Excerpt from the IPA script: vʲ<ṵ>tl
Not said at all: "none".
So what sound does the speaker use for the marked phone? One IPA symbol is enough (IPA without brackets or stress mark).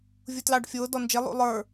u